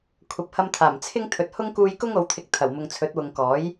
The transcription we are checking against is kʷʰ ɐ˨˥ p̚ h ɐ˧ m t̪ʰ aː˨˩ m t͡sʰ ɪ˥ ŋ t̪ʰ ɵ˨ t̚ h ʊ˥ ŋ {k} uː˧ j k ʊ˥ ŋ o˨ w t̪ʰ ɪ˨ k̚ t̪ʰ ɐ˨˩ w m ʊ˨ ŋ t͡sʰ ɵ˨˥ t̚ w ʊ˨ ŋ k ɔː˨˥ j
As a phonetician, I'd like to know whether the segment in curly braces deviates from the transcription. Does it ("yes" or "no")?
no